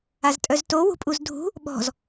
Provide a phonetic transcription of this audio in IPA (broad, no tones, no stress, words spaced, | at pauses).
aztʼœzto wṳpʼuzdʱṳ | ɓɔ̤z